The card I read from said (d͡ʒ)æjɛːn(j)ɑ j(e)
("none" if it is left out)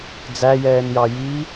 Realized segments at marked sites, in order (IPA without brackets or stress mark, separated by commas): d͡z, j, i